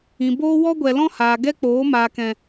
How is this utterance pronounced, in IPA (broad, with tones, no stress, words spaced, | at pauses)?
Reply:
ĩ˨boː˦ wɔ˦ɡʷɛ˨ lɔ̃˦haː˨ ɡɛ˦k͡poː˨˦ maː˨kɛ̃˨